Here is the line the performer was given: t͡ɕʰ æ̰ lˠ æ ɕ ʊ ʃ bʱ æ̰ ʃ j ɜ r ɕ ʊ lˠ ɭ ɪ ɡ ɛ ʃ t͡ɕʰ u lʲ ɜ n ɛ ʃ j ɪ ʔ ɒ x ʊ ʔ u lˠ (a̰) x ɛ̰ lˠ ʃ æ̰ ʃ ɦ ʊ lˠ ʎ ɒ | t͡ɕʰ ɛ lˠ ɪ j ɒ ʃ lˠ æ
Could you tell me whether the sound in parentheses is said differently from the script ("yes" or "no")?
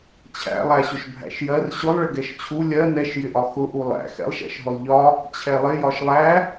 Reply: yes